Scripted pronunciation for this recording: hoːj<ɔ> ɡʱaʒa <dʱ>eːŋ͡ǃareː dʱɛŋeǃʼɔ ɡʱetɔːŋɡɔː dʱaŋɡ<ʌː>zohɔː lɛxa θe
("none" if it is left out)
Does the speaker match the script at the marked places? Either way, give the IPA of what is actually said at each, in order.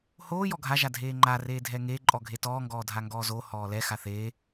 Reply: ɔ, dʱ, ɔː

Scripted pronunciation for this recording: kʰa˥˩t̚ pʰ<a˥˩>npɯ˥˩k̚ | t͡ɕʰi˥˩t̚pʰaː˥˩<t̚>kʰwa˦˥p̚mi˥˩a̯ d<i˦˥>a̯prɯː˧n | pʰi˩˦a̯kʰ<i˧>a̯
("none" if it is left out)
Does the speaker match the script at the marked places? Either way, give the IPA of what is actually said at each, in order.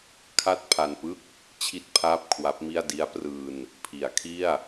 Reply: a˧, p̚, i˦˥, i˥˩

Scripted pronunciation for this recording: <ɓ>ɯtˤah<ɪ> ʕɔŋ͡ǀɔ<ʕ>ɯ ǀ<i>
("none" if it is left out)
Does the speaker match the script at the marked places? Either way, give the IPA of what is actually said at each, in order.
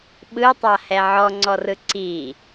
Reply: ɓ, ɛ, r, i

